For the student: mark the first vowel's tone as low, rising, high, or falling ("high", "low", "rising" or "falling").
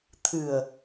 low